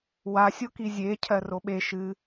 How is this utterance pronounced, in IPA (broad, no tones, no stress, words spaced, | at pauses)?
wa sʲokizʲe cʰɜroɓe ʃɨ